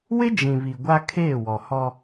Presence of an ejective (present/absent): absent